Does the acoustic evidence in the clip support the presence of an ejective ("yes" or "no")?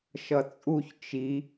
yes